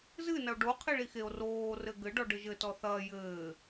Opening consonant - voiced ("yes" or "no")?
yes